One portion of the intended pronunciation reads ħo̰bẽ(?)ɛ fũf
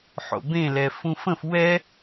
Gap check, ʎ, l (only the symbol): l